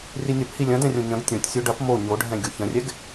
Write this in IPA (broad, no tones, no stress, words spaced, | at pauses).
rinʲɐp hilʲɐ̃dɛ̃rʲõ ɲɐ̃ɡ tʲõtʲsʲo ɖɐp mo ɲoɖʱɛ̃ ɡʲoçɐ̃rʲɛɡ